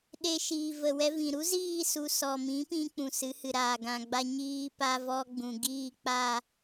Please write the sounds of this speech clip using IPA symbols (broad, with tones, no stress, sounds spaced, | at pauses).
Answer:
ɗ e˧ ʃ iː˨ v ə˨ w ɛ˧ v ĩ˨ ɾ u˦ z iː˦˨ s u˨ s ɔ˨ m ĩ˨˦ p ĩ˧ k͡p ũ˨ s ɨ˨˦ h ɨ˨ ɾ aː˨ ɡ ã˨ ɡ͡b a˧ ɲ iː˦ p a˦ v ɔ˧ ɡ͡b ũ˨ ɡ iː˦˨ k͡p a˦˨